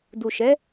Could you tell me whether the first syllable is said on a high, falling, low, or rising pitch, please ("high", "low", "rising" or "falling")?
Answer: low